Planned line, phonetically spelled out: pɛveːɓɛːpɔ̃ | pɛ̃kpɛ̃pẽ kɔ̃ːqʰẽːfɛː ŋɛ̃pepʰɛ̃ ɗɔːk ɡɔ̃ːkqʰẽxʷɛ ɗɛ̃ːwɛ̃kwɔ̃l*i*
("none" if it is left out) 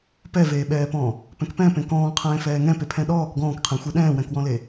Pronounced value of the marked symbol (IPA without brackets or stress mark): e